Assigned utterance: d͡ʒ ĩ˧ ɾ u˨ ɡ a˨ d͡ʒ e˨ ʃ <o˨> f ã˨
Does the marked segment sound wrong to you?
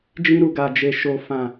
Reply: no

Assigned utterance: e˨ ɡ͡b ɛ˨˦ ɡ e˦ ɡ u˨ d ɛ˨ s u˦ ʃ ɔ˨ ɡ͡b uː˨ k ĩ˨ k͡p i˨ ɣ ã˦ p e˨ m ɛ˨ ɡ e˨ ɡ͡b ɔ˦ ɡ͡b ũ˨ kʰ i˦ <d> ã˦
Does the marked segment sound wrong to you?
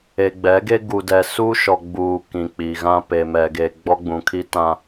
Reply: yes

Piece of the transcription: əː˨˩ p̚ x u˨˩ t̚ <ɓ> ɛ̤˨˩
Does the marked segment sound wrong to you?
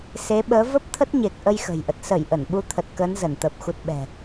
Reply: no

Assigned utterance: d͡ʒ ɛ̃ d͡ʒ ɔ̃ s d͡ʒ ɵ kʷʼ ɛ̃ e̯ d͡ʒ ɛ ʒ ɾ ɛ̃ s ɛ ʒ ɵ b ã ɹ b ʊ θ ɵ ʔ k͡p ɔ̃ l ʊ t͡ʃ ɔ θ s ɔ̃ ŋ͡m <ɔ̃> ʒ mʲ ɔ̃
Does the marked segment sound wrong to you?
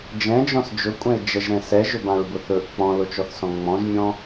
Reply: no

